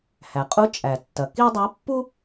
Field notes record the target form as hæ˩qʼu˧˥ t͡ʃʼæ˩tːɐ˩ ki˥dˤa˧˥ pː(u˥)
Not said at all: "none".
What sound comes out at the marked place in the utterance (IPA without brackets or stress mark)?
u˥